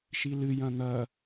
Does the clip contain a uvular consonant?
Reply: no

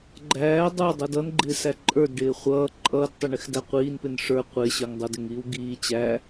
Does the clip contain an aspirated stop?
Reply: no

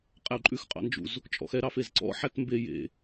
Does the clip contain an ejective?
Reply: yes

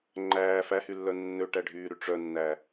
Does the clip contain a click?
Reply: yes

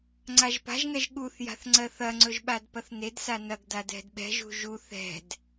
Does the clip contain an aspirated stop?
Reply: no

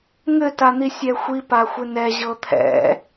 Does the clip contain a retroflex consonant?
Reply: no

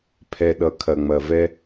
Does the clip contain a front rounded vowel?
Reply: no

